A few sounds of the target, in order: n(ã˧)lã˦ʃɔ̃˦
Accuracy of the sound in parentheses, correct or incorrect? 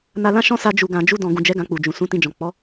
incorrect